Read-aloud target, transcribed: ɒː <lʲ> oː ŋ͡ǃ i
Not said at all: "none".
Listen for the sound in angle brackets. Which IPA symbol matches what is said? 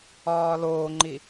l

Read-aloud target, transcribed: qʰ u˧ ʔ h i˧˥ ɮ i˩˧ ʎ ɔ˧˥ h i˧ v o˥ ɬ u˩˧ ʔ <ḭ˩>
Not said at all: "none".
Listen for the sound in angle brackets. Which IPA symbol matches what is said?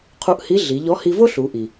i˩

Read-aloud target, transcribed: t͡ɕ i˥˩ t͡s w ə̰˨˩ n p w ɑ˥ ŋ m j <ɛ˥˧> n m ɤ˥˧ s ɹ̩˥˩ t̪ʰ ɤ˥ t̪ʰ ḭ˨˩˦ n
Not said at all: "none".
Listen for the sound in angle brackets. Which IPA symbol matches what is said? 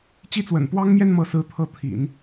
ɛ˥˧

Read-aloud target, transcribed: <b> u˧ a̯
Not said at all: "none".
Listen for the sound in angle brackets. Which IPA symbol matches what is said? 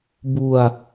b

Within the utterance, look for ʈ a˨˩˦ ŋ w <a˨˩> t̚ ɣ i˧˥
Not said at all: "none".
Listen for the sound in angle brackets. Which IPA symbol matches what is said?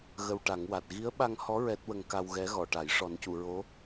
a˨˩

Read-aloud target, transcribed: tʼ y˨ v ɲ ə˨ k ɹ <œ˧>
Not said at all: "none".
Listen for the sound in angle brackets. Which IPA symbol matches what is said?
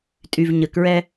ɛ˧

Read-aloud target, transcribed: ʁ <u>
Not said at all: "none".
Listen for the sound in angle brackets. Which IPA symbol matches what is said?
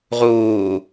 uː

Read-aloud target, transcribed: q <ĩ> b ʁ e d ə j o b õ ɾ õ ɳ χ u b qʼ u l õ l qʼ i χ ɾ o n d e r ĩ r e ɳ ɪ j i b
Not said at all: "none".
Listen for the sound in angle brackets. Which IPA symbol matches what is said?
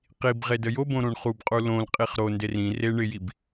i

